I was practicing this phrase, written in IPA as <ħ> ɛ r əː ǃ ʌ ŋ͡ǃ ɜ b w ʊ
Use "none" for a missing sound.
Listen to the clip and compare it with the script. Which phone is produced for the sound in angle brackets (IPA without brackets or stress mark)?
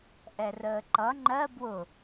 ʔ